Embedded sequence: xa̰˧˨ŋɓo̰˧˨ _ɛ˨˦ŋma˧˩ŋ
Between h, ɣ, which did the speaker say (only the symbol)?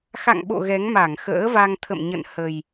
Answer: ɣ